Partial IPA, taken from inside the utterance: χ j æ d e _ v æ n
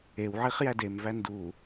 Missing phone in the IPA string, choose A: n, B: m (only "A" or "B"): B